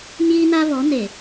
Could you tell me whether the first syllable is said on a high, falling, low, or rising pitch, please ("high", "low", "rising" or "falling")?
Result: high